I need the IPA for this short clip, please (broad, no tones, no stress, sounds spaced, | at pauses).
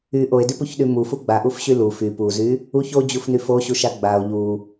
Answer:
y ʔ o e̯ d y p u ç ɗ y m u f u ɡ͡b a ʔ u f ɕ y l u f y p u z y | u ç o d͡ʑ u f n y f o ɕ u ʃ a ɡ͡b a o̯ ʎ u